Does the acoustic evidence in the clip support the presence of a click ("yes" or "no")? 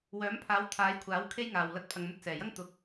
no